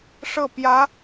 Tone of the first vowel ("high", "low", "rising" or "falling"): falling